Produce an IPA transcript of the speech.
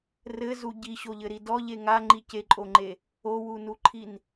rɘzu ɟiɕoʎɘɾi dɔʎe ŋaŋ͡ǃi ceǃʼoŋ͡ǃe | owunuǃʰin

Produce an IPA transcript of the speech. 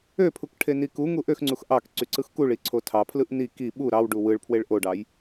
øpʰuk ʈʰenikuŋu ʔøxŋ͡ǀux ʔɑk ǀyǀɯxkuɭi ǀʰotʰɑpʰlɯʔ ni ki ɓu ɾɑwɖu wɯɭpʰweɭ ʔoɖɑj

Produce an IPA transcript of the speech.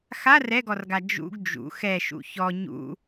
xar ɛɡɔrɡa d͡ʒṵɡ d͡ʒṵ xɛʃṵ çɔ ɲṵ

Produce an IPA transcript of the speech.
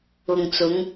ʊ˨ŋt͡sʊ˨˧ŋ

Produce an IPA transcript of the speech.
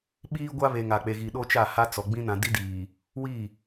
ɓiː˦ɡʷa˦βe˨ ŋa˨k͡pe˨ ɣi˨ ɗo˦t͡ʃa˦˨ha˦ t͡sɔ˨ ɡ͡bĩ˦nã˨ di˦diː˨ | wi˦˨

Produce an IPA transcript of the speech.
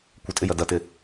kʷɪtʼɪjɐ dɐtɪ

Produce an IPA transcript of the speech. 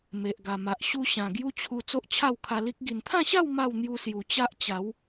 me˨ʔ ɡa˨˩ma˨ʔ ɕu˧ ɕã˨˩ɡju˦t͡ɕʰu˧ t͡so˦ʔt͡ɕʰa˥˧wkʰa˧li˦k̚ ɡi˨˩nt̪ʰã˥˧ɕa˥˧w ma˥˧wn̪ju˧sju˨˩ t͡ɕa˦ʔt͡ɕa˨˦w

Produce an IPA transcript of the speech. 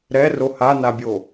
ɾɛro hanabʲo

